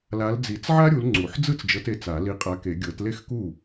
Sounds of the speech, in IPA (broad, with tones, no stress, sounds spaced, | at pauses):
l a˨˦ l d͡z i˨˩˦ t͡s ʕ a˥ ɾʲ u˨˦ l ŋ͡ǀ u˨˩˦ ħ d͡z ɯ˥˩ t͡s d͡ʒ ɤ˨˦ t e˨˦ t͡s a˨˩˦ l i˨˦ qʼ a˨˦ k e˨˩˦ ɡʲ ɤ˨˩˦ t l e˥˩ x k u˥˩